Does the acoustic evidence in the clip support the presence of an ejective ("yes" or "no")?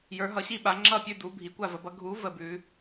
no